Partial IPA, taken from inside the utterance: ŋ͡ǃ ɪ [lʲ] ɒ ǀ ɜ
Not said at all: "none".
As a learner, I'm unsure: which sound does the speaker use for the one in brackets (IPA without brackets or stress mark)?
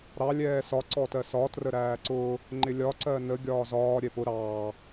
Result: lʲ